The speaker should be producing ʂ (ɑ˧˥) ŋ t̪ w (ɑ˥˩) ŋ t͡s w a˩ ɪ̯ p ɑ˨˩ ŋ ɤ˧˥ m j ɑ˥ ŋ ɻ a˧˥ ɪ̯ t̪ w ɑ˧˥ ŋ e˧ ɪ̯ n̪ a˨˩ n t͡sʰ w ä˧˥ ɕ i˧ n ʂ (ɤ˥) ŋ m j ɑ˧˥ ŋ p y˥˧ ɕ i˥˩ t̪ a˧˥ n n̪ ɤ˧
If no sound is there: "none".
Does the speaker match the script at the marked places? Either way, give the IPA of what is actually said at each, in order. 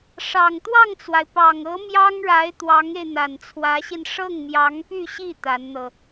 ɑ˨˩, ɑ˥˩, ɤ˥˩

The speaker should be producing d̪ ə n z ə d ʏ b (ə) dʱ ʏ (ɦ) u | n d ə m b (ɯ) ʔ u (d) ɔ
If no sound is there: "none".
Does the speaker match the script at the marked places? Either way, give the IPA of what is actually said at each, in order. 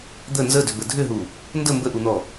ə, ɦ, ə, n̪

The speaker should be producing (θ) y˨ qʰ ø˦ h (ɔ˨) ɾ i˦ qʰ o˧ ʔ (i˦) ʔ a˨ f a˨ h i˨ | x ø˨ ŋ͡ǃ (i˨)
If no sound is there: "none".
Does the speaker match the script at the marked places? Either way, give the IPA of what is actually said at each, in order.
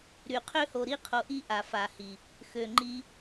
ɾ, o˨, i˦, i˧

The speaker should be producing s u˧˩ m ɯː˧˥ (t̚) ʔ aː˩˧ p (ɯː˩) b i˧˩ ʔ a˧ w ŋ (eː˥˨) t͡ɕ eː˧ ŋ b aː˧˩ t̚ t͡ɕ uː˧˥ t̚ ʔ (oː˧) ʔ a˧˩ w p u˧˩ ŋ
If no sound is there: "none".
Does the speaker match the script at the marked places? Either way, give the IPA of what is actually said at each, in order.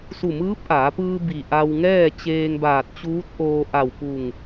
p̚, ɯː˧, ɛː˥˨, oː˧

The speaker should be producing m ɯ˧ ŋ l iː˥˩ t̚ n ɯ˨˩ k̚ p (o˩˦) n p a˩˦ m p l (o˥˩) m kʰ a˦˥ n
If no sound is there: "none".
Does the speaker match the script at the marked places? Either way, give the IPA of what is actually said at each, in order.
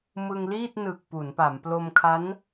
u˩˦, o˧

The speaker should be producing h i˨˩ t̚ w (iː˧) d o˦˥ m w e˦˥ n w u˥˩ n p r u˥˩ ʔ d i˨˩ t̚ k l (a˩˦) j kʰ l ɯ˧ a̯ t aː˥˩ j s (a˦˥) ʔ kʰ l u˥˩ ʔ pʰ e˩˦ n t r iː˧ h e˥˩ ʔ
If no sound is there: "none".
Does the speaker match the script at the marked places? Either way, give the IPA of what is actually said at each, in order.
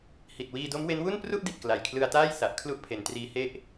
iː˧, a˨˩, a˨˩

